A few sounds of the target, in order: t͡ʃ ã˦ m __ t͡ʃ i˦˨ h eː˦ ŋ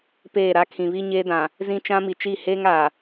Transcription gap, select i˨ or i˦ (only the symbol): i˨